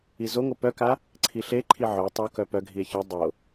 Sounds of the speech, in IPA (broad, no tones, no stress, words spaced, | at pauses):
izoŋo pœka | ǀʰiɬeǃʰi ʕœ tˤokœ pœɡʱie̯ çœ dˤo